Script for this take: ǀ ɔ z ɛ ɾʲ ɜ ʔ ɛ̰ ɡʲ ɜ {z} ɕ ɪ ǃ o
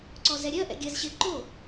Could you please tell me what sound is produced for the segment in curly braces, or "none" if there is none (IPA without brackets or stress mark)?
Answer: z